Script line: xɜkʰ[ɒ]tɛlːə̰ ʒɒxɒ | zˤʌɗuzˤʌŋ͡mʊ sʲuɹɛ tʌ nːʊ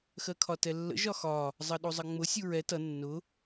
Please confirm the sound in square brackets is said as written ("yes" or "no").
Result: yes